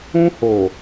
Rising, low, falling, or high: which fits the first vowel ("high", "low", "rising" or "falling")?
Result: high